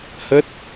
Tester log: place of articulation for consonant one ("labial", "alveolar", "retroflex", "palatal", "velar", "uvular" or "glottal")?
glottal